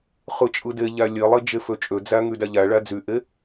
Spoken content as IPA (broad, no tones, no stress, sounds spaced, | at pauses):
χ ɯ t͡ʃʼ ɯ d e ʎ æ lʲ e lˠ e d͡ʒ e f ø t͡ʃʼ ø d͡z æ ŋ y d æ ʎ æ ɭ æ d͡z y ʔ e